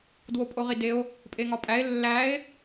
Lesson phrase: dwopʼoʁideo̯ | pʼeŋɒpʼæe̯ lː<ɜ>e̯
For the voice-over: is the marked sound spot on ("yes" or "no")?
no